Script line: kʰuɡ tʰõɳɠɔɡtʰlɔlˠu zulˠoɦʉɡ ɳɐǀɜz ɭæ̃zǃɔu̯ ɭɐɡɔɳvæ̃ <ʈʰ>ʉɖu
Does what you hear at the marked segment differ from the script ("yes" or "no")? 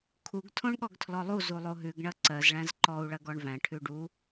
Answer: no